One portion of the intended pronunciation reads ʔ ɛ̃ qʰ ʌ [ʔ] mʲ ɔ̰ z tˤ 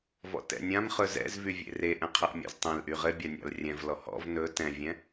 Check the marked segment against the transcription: correct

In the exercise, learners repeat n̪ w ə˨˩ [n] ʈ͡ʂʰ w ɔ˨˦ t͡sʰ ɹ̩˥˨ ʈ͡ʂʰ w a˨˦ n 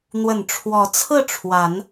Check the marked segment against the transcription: correct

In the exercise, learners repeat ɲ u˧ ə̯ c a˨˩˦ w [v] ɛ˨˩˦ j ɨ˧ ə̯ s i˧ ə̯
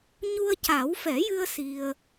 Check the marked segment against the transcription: incorrect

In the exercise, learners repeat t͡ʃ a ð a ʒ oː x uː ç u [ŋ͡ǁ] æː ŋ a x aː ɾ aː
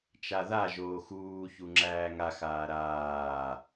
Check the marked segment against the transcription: correct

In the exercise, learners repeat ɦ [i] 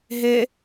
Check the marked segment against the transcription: incorrect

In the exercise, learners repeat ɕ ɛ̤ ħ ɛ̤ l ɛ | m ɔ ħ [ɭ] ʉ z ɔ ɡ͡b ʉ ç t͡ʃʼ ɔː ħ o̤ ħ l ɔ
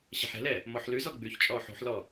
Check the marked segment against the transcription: incorrect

